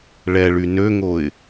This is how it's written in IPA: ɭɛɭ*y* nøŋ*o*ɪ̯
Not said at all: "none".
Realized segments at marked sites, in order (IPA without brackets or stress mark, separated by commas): y, o